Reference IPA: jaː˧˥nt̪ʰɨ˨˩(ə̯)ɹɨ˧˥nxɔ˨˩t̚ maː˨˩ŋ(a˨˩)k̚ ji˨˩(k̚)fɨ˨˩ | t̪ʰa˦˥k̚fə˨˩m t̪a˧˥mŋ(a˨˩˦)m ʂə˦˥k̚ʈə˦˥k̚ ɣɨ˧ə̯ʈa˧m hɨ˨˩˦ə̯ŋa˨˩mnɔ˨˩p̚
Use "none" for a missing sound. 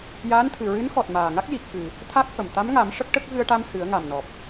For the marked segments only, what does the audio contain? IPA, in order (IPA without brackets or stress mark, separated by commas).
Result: none, a˦˥, k̚, a˨˩˦